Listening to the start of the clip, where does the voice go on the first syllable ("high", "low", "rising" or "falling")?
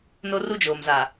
high